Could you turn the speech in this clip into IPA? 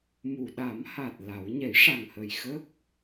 m u˨˩˨ ɗ a˨˩˦ m h a˨˩ t̚ l a˨˩˦ w ɲ ɛ˨˩˦ j ʂ a˨˩ ŋ h ə˨˩ j x ə˦˥ k̚

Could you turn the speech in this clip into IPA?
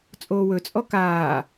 t͡sʼ oː w ɵ t͡sʼ ɔ k aː

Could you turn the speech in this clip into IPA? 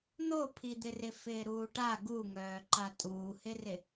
n̪ o pʰ i d̪ ɪ r ɪ f ɪː ɾ uː ʈ a ɡ u ŋ œː ǃ a tʼ uː h ɪ r ɪ

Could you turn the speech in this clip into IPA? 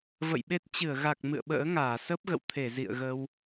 v ə̰˧˨ j ɓ e˦˥ t̚ t͡ɕ ɨ˧˩ ə̯ ɣ a˨˩ k̚ m ɨ̰˧˨ ə̯ ɓ ə̰ː˧˥ ŋ aː˧˩ s ə˦˥ p̚ ɣ ə̰˧˨ w t̪ʰ e˧˩ z ḭ˧˨ ə̯ ɣ ə˧ w

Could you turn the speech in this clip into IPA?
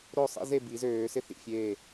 ɾ o˥˩ sˤ ḭ˦ z e˥˩ b i˨˩˦ z øː˨˩˦ s ɪ˦ θ ḭ˥˩ fʲ eː˥˩

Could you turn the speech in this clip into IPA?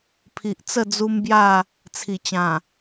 pʰ i˨ ʔ t͡s ə˥˧ d͡z u˦ m b j a˥˧ | t͡sʰ i˨˩ t͡ɕ ã˨˩

